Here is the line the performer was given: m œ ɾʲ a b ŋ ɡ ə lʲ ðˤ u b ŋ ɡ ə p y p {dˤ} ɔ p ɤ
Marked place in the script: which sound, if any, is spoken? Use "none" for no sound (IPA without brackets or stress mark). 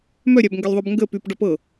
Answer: ɖ